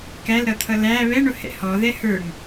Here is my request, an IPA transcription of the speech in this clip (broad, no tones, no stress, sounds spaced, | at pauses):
k æ l ɾ ʌ t̪ʰ ʌ l æ β ɛ ɳ ʊ h ɛ̰ h ɔ ð ɛ h ə˞ ŋ